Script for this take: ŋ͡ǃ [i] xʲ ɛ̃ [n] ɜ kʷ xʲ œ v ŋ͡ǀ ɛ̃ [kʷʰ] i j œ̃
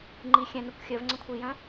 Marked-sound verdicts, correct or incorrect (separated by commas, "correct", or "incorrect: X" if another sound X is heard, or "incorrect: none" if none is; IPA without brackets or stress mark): correct, correct, correct